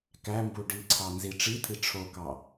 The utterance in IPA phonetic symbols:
k æ m b u ɖ i ǀʰ ɑ n z i ʈ͡ʂ i t̪ʰ i ʈ͡ʂʰ o k ɑ

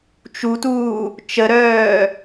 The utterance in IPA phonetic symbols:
t͡ʃ u t uː | t͡ʃ ə ɾ œː

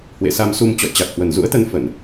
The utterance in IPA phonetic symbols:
h w ḛ˧˨ s a˧ m s u˧ m t͡ɕ ɔ̰˧˨ j t͡ɕ a˨˩ k̚ h w ə˨˩ n z ṵ˧˥ ə̯ t̪ ə˧ n f ə˧˩˨ n

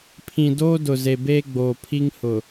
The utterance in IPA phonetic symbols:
pʰ ĩ˨ d oː˦ d ʊ˨ z e˨ b eː˦ ɡ͡b oː˨ pʰ i˦ ŋ h ʊ˨

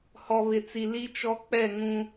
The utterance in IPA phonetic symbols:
h ɔ˨ β ɪ˨ t͡s i˨ l i˦ t͡ʃ ɔ˦ k͡p ɛ˦˨ ŋ ũ˦

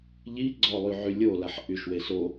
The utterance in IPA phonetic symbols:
ʎ i ɡ͡ǀ ɔ lˠ y ʕ y lʲ o l a ħ ʔ y ʃ w e s o

